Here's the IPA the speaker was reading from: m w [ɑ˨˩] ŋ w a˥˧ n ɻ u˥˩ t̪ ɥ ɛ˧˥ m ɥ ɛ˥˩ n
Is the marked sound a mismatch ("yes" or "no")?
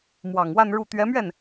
no